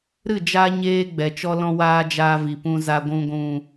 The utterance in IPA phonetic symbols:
ɾ ɨ˦˨ d͡ʒ a˦ ɲ eː˦ ɡ͡b ɛ˨ t͡ʃ ɔ˧ l ɔ̃˧ w aː˧ d͡ʒ aː˧ v i˨ p ũ˧ z a˨ ɡʷ ũ˨ ɡʷ ũ˨

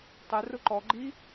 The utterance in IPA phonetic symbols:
tˤ ɛ r ʊ ǃ ɔ ɡ͡ǃ i

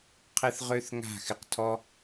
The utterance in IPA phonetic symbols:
qʰ ɪ˦ θ ʁ ø˦ θ ŋ a̤˦˨ x ɪ˨ q tʰ ɔ˦

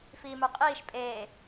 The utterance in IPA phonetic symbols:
f iː m ə˞ qʼ iː ʃ pʼ eː

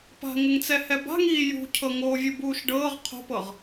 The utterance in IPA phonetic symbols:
p a̤ ŋ ə ŋ t͡s ɛ h ɛ b a̤ ŋ iː j ṳ cʰ ɤ ŋ oː vʲ u b uː ʃ ɖ ɤː ʁ qʰ o̤ p ɤ ʁ

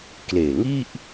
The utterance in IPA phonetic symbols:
k l eː˨˩ ŋ i˥˩ ʔ

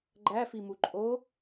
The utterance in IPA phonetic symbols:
ɡ͡ǃ æ f i m u ǃʼ o

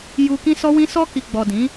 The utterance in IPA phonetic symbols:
j u˧ k ĩ˦ s ɔ˦ w ĩ˦ s ɔ˧ k i˨ ɡ͡b ɔ˨ d ĩ˨˦

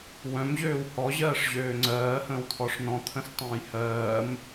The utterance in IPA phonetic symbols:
w œ̃ m ʑ øː w h ɔ ʑ ɜː ʂ ʑ øː ŋ͡ǀ ɜː h ə̃ː w t̪ʰ ɔ ʂ n ɔ̃ t̪ʰ ə̃ s tˤ ə̃ː j h ɜː m

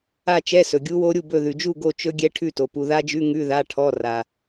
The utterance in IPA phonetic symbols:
a˥˨ t͡ʃ ɛ˧˥˧ s ɵ˨ ɡʲ u˦˥ w o˦˥ ɾʲ u˥˨ b ɵ˥˨ ð ʉ˨ d͡ʒ u˥˨ ɡ o˥˨ t͡ʃ ɵ˦˥ ɡʲ ɛ˦˥ ʈʰ ʉ˥˨ t o˨ p u˨ ð a˦˥ d͡ʒ ʉ˧˥˧ ŋ ʉ˧˥˧ ð a˧˥˧ ʈʰ ɔ˧˥˧ r a˨

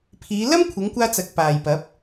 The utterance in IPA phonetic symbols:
pʰ iː˨˧ l ɐ˥ m kʷʰ ɪ˨˧ ŋ kʷ aː˧ t͡s ɐ˨ k̚ p aː˨ j p ɐ˨˥ p̚

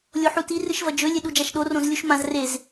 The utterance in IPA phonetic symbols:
lʲ o ħ u t i r ɨ ʃ v ɐ d͡ʒ ɵ lʲ e ɗ u d͡ʒ a ʃ ɗ o r õ z lʲ u ʃ m ã z r e z

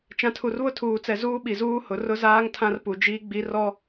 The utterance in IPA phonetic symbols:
t͡ʃ ã˨ tʰ u˨ r β ʊ˦˨ tʰ uː˨ t͡s ɛ˨ z uː˦ ɓ i˨ z uː˦ h ʊ˨˦ r ʊ˦ z aː˦ ŋ tʰ ã˦ r p u˨ d͡ʒ iː˦ ɡ͡b i˨˦ r ɔ˦

